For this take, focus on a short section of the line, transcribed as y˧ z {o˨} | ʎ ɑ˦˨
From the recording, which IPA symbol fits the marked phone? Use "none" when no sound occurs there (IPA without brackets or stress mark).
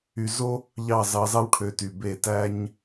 o˦